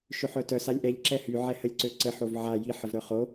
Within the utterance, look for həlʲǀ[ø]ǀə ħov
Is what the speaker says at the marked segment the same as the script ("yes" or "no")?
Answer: yes